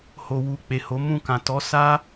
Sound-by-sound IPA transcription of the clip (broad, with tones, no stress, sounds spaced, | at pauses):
h o˨ w u˨ k͡p e˨ h o˨˦ m ũ˦˨ k ã˨ t ɔ˨˦ s a˦